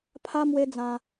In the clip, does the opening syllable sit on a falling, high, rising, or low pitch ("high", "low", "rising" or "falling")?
high